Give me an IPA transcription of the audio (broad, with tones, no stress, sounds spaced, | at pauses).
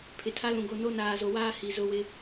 pʰ ɪ˨ tʰ a˦ l ũ˨ ɡ o˦˨ n o˦ n aː˨ z o˨ w aː˦ h i˨ z ʊ˦ w ɪ˦